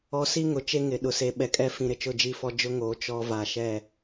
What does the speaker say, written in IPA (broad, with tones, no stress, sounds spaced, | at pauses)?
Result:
ɔ˨ s i˦ ŋ ʊ˨ t͡ʃ e˦ ŋ ɪ˨ ɗ ʊ˨ s e˨ ɓ ɛ˨ kʼ ɛ˦ f ĩ˨ ɾ ɪ˨ t͡ʃ ʊ˦˨ d͡ʒ i˦˨ f ɔ˦ d͡ʒ ʊ˦ ŋ oː˨˦ t͡ʃ ɔ˦ v a˨ ʃ ɛ˦˨